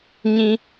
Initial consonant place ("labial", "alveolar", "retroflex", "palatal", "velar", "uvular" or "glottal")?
palatal